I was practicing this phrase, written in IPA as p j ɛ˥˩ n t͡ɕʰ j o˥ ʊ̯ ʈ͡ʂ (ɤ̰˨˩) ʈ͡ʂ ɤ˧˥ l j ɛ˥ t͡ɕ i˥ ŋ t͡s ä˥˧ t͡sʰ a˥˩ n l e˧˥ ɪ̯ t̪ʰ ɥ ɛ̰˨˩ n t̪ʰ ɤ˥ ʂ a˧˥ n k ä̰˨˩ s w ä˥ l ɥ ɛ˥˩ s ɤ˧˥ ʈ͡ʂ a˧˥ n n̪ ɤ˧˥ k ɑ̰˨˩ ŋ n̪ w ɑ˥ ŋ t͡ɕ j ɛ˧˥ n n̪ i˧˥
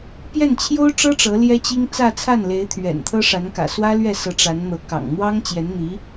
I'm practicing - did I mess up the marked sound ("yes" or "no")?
yes